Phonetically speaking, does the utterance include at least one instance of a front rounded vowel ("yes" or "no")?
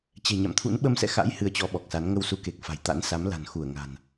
no